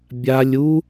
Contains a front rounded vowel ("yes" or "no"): no